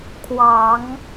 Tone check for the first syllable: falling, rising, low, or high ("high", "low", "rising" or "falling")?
low